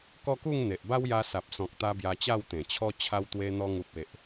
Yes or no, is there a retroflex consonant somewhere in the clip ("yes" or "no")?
no